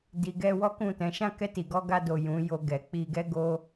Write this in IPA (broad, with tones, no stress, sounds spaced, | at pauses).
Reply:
d i˨ ɡ ɛ˧ w ɔ˦ k ũ˦˨ t ɛ̃˨˦ ʃ ã˦˨ k ɛ˧ t i˨ ɡ ɔ˧ ɡ a˧ d o˨ j ũ˨˦ j o˧ ɡ ɛ˨ k͡p i˧ ɡ ɛ˦ ɡ o˦